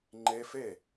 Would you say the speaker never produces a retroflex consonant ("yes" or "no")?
yes